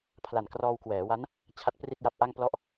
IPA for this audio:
pʰla˨˩nkrɔː˧wkwɛː˩˦wa˦˥n | t͡ɕʰa˦˥t̚pri˥˩t̚ja˦˥p̚ʔa˥˩ŋ plɔ˥˩ʔ

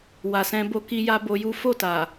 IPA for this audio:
wa˨sɛ̃˧ bo˧ki˧ja˧ bo˧ju˦ fo˦˨ta˨

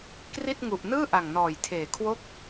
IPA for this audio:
kri˥˩t̚ŋu˨˩ʔ nɯː˥˩ʔa˨˩ŋnɔː˨˩jtʰeː˨˩ kʰwo˦˥k̚

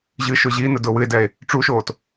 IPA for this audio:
ʑɨʃʊ ʑinə dʊwɨe̯dɛe̯ | ʈ͡ʂuʃoːt

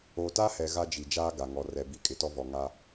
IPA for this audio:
o˨ta˦hɛ˨ ɣa˦d͡ʒi˨ d͡ʒaː˦ɡa˨ŋɔ˨ rɛ˨bi˨ kʼɪ˨˦tɔ˦vɔ˨ ŋa˦

